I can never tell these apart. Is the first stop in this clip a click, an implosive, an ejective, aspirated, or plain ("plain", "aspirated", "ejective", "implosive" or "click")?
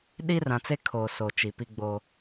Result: implosive